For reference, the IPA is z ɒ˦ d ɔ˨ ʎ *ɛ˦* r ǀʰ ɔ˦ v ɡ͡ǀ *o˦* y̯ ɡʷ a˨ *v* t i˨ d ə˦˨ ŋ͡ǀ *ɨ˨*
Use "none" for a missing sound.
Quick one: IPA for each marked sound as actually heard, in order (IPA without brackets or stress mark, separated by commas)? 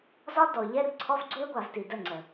ɛ˦, u˦, v, ə˨